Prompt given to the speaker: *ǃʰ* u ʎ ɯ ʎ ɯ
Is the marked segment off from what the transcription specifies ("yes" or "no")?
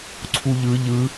yes